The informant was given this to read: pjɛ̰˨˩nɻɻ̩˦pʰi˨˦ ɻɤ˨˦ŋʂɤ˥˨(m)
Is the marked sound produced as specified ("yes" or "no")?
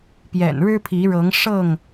no